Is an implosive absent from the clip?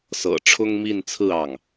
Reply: yes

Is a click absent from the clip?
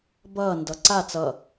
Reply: no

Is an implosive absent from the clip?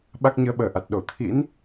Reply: no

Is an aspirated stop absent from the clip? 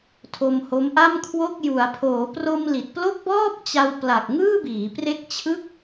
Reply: no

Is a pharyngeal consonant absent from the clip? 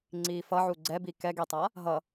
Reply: no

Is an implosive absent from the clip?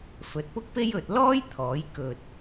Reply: yes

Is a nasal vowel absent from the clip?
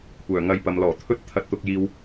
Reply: yes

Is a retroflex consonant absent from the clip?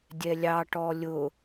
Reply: no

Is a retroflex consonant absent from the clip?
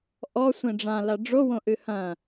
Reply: no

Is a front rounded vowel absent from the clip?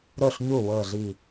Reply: yes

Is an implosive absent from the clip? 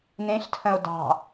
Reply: yes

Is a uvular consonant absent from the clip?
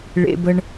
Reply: yes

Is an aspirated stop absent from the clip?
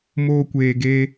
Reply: yes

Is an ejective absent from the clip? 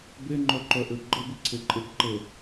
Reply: no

